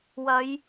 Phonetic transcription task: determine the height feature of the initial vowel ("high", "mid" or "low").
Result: low